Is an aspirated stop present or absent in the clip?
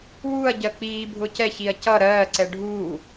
absent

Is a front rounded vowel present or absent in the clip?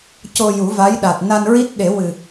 absent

